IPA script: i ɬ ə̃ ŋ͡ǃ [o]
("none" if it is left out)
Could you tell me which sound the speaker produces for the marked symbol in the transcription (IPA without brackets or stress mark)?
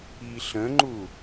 u